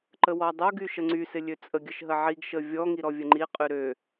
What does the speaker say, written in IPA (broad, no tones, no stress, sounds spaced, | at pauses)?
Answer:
ǃ ə w ɔ dˤ o ɡ y ʃ ə ŋ͡ǀ y s ɪ lʲ ø t͡sʼ ə ɡʲ ə ʃ ɦ ə ʕ i ɡ ʃ ə vʲ ɔ ŋ i ɾ ɔ vʲ ə ŋ͡ǃ i qʼ y ɾ ø